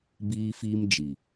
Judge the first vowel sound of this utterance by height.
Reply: high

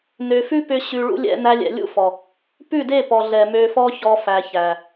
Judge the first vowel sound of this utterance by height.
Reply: mid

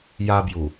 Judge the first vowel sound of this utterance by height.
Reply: low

